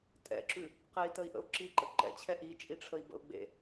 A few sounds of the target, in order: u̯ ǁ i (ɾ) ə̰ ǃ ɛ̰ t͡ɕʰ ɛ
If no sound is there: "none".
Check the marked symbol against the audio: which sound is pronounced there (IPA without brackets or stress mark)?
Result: ǃ